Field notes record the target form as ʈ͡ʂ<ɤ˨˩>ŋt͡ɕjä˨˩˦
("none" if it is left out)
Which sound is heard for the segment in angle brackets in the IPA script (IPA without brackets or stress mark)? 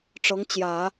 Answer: ɤ˧˥